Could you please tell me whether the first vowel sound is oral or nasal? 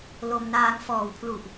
oral